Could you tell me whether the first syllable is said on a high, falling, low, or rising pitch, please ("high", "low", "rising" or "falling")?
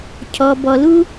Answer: low